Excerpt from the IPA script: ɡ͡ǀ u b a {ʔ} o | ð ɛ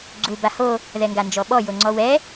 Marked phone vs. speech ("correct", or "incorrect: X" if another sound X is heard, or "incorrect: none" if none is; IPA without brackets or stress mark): incorrect: h